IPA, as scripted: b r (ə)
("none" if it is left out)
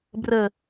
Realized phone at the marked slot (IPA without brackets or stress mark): ə